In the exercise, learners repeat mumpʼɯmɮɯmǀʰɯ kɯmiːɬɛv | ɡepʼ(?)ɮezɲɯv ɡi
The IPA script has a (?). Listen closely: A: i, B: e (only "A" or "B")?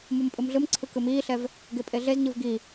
B